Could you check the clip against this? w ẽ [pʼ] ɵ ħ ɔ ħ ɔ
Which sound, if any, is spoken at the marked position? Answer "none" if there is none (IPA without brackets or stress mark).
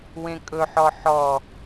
kʼ